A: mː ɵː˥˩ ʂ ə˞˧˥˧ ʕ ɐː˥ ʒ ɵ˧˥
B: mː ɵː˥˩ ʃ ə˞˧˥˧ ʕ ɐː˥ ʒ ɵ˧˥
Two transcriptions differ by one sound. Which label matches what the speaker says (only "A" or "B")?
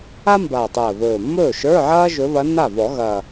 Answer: B